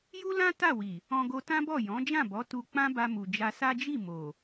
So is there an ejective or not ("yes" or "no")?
no